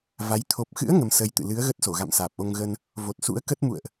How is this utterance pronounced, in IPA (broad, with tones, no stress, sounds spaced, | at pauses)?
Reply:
v a˨˦ j t̪ʰ o˨˩ p̚ x ɨ̰˧˥ ə̯ ŋ ə˧ m s ə˧ j t̪ ɨ̰˧˨ l ɨ˨˦ ə̯ ɣ ə˦˥ t̚ s o˧˩ ɣ a̰˧˨ m s aː˨˩ p̚ ʔ o˧ ŋ ɣ ə˧ n | v o˨˩ t̚ s ṵ˧˥ ə̯ k ə˦˥ t̚ m ṵ˧˨ ə̯ ʔ